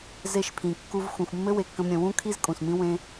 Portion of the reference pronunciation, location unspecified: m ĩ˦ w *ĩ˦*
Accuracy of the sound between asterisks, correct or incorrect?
incorrect